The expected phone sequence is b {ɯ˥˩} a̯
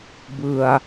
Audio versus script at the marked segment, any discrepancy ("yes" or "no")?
yes